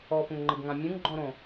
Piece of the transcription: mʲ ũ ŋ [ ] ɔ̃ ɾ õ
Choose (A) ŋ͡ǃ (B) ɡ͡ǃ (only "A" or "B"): B